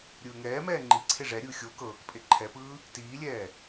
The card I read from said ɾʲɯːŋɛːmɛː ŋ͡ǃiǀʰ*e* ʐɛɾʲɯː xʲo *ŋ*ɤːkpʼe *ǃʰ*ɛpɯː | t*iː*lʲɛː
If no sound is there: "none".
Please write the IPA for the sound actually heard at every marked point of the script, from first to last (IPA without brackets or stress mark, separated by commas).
e, k, ǃʰ, iː